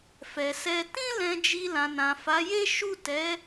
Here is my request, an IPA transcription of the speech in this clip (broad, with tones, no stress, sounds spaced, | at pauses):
f ɛ˨ s ɛ˧ t ĩ˦ l ɛ̃˧ d͡ʒ i˧ l ã˨ n ã˨ f a˨˦ j e˦ ʃ u˦˨ t ɛ˨˦